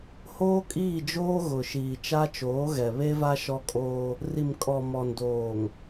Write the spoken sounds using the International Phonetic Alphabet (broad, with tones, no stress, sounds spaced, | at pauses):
h oː˦ kʼ iː˦˨ d͡ʒ oː˦ ɣ ʊ˨ ʃ iː˨ t͡ʃ a˦ t͡ʃ oː˨˦ ɣ ɛ˨ β e˦ v a˦ ʃ ɔ˦ kʼ oː˦ | r i˨ m kʼ ɔ˨ m ɔ˨ n d oː˨ ŋ